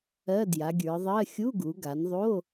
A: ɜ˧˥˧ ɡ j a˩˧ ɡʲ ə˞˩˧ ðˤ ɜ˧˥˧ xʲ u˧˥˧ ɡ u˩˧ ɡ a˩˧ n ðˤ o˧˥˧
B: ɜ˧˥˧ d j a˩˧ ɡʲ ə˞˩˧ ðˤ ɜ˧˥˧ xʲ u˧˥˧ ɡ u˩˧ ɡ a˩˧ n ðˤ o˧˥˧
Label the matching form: B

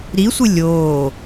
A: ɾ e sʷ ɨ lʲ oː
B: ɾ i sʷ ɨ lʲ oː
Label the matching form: B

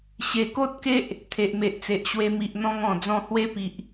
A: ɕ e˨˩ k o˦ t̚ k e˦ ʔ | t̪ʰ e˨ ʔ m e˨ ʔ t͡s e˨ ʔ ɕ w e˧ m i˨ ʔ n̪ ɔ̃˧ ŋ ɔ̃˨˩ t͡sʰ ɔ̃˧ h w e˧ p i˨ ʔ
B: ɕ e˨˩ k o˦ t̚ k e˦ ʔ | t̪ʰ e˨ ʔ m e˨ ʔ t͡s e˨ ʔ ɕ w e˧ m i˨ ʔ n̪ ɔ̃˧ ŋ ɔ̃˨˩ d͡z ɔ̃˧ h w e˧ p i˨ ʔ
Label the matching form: B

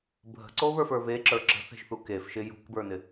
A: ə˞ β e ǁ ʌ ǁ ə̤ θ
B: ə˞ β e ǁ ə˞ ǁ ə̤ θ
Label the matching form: B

